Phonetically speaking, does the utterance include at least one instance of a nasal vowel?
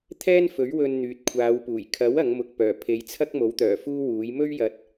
no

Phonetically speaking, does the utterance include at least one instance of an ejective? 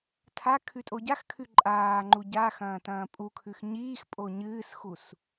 yes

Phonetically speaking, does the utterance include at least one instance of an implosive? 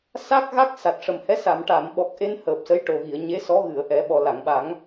yes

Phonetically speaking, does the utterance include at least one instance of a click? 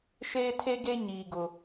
no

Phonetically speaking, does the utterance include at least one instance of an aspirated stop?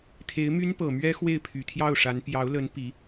yes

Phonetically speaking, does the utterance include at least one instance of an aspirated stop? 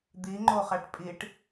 no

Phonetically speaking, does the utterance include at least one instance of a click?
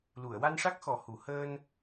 no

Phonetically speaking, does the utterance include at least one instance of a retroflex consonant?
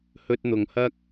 no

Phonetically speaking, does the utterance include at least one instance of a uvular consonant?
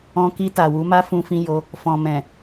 no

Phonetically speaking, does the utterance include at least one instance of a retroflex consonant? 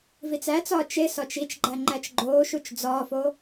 no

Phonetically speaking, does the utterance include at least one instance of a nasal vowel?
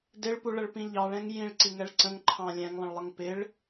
yes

